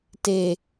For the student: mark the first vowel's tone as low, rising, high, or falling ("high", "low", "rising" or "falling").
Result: low